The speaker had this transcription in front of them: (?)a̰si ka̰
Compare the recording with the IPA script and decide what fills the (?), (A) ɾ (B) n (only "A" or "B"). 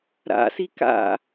A